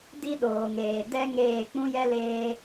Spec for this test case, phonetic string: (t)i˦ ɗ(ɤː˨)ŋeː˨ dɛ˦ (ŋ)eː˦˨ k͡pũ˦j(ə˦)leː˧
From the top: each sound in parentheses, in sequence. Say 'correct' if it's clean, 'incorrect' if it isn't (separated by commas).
incorrect, incorrect, correct, incorrect